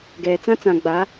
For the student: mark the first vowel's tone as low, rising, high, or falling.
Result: low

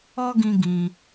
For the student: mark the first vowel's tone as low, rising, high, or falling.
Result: high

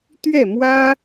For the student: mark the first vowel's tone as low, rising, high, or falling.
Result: falling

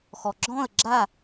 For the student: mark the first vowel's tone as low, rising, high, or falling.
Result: low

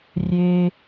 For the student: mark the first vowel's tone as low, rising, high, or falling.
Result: high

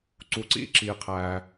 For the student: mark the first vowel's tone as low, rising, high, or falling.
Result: low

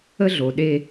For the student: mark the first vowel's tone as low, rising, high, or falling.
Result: high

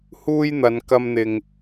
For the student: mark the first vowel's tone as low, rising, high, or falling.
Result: high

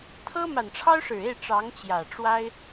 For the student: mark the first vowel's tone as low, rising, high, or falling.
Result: high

